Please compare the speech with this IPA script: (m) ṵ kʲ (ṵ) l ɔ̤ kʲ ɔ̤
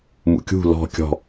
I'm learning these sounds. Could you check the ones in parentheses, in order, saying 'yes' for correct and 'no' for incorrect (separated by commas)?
yes, no